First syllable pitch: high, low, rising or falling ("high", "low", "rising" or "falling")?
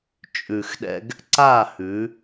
low